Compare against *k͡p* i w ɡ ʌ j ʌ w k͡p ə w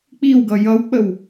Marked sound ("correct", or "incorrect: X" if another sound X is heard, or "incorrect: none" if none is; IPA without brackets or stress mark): correct